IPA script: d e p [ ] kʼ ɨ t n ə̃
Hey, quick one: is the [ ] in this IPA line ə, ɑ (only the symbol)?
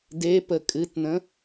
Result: ə